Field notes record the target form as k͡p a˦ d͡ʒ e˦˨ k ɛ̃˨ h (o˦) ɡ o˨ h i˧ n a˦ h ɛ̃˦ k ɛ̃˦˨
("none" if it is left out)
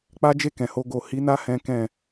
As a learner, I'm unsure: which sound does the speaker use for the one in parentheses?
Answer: o˧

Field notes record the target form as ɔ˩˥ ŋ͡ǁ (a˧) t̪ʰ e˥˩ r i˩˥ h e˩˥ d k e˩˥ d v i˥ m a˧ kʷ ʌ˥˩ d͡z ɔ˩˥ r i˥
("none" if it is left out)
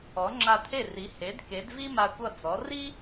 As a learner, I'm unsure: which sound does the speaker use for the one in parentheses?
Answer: a˧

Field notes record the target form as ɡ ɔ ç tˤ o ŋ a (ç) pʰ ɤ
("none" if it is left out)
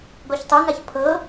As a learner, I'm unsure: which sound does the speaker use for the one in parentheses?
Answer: ç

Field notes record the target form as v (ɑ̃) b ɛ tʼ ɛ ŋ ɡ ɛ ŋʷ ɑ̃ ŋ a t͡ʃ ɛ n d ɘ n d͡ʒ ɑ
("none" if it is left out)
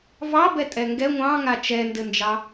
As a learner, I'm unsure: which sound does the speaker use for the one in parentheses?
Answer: ɑ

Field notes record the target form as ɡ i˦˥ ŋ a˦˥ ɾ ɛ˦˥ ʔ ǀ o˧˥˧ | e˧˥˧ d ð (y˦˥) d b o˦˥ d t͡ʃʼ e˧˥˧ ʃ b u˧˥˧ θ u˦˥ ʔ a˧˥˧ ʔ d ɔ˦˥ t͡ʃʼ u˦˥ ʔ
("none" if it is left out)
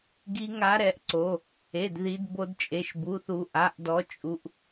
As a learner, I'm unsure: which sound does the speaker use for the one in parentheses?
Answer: i˦˥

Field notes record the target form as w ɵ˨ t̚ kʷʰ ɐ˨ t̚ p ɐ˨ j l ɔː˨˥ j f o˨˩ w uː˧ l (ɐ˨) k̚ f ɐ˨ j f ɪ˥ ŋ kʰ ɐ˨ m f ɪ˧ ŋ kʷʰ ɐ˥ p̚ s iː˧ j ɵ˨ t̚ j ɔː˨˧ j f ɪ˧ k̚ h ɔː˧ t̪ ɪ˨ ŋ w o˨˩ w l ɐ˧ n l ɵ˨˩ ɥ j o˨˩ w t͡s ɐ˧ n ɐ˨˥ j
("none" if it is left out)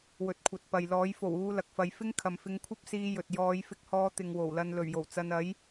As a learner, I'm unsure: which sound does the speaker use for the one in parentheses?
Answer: ɐ˨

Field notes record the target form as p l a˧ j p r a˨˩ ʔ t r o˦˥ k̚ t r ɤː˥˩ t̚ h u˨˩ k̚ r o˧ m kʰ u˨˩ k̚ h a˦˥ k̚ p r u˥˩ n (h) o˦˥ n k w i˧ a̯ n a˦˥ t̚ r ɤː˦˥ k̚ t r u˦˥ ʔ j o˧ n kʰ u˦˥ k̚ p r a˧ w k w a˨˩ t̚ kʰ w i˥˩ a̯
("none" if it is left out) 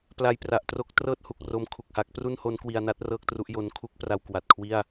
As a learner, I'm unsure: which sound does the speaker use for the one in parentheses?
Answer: h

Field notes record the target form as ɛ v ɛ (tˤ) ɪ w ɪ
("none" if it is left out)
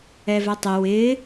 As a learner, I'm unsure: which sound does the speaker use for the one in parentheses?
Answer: tˤ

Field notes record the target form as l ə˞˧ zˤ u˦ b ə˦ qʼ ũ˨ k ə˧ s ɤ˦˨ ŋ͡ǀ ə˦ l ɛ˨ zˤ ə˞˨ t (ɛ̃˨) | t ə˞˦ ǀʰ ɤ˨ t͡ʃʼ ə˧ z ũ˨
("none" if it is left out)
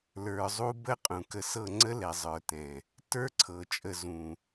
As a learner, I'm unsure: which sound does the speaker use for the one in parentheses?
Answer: ɛ̃˨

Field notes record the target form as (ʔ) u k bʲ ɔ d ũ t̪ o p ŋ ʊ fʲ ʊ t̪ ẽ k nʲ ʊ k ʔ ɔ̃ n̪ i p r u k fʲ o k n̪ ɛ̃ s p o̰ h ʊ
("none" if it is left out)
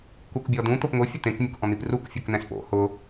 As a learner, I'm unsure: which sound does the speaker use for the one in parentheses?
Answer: k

